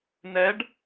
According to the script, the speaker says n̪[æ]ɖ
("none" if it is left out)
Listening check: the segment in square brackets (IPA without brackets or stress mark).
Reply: ɛ